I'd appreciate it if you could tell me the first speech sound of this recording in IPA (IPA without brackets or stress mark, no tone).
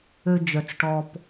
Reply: ø